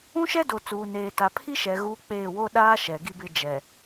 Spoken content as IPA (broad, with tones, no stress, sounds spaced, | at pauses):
ũ˦ ʃ ɛ˦ d o˨ t͡s uː˨ n eː˨ t a˨ pʰ i˦ ʃ ɛ˨ ɣ uː˦ k͡p eː˦˨ w o˦ ɗ aː˦ ʃ ɛ˨ ɡ i˦ b ɪ˦ d͡ʒ ɛ˨